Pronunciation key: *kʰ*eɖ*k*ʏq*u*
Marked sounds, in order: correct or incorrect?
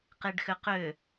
incorrect, incorrect, incorrect

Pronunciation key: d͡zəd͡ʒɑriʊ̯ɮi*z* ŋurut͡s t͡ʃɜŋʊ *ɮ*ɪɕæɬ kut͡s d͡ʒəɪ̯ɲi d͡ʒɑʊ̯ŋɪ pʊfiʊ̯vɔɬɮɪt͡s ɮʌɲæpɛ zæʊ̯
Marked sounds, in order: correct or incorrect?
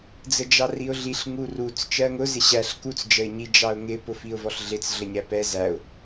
incorrect, incorrect

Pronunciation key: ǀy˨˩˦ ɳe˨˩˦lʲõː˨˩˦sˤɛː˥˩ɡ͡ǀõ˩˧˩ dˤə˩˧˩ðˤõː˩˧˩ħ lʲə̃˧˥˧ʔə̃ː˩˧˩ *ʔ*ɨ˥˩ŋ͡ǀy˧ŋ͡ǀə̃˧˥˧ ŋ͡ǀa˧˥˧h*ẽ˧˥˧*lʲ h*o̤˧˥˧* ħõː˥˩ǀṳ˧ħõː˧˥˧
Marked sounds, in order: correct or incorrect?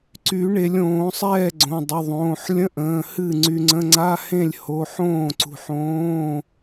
incorrect, incorrect, incorrect

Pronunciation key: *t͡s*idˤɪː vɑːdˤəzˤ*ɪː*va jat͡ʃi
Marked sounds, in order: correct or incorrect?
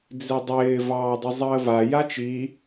incorrect, incorrect

